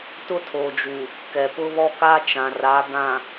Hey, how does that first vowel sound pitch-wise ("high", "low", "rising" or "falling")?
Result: high